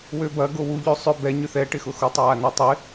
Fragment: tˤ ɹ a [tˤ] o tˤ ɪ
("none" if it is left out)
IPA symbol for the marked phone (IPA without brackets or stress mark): n